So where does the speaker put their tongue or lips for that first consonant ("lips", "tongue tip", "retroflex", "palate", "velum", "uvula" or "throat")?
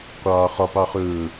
uvula